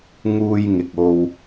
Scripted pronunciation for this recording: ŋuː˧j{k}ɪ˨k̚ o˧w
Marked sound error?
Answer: yes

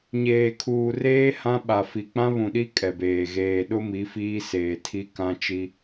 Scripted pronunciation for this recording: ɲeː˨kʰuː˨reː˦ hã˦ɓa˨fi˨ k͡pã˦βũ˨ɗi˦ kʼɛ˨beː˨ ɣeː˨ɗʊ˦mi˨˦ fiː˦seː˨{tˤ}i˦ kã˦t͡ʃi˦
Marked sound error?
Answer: yes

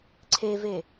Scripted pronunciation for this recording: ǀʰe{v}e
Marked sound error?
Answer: no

